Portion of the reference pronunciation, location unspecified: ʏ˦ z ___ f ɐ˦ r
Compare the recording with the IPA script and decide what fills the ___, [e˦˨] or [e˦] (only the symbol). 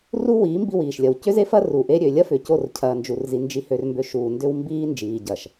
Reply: e˦